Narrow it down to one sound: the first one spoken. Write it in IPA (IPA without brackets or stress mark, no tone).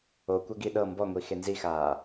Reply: o